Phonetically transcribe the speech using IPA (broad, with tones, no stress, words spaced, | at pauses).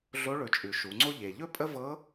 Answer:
ɮo˧˥ɭɵ˩˧t͡ʃʼʉ˩ ʃu˩˧ŋ͡ǀo˥ ʎe˩ʎɵ˥pʼə˥vɤ˧˥